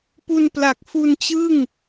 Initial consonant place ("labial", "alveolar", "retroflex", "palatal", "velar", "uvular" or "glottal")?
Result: labial